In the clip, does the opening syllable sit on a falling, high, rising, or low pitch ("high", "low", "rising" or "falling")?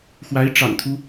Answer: rising